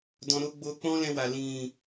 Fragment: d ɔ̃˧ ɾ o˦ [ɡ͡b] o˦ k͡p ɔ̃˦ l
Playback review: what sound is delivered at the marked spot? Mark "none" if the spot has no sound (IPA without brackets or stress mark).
ɡ͡b